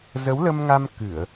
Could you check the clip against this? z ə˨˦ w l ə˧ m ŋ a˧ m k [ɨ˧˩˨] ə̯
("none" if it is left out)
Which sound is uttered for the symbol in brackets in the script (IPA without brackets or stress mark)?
ɨ˧˩˨